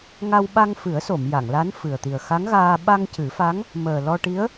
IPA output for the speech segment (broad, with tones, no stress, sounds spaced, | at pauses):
ŋ a˧ w ɓ a˧ ŋ f ɨ˨˩˦ ə̯ s o˨˩˨ m j a˨˩˨ ŋ l a˧˥ n f ɨ˨˩ ə̯ t̪ i˨˩ ə̯ x a˧˥ ŋ ɣ aː˧ ɓ a˧ ŋ c ɨ˨˩˦ f a˧˥ ŋ | m əː˨˩ l ɔ˧ ʈ i˧˥ ə̯